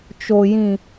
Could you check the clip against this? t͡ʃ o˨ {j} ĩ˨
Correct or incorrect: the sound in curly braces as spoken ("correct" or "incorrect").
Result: correct